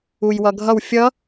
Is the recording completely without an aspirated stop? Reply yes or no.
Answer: yes